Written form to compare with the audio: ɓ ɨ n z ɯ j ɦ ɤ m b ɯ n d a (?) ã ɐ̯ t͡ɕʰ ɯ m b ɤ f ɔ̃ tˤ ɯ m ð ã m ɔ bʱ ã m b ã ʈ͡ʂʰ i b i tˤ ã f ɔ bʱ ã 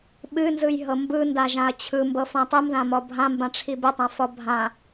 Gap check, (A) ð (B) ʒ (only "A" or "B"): B